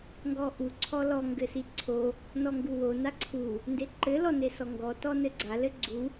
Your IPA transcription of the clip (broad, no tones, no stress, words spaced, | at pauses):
ŋɡɔʔu ǀʰɔlɔ ŋɡɘsiǀʰo | nɔŋɡuwo naǀʰu | ndeǃɘ lɔnesɔŋɡɔ tɔnɘɡ͡ǀa lɘɡ͡ǀu